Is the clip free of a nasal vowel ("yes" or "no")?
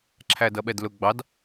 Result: yes